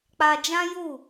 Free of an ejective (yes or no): yes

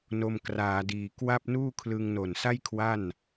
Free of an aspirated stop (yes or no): no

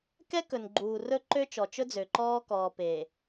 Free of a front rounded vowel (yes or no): no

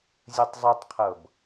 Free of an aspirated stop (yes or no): no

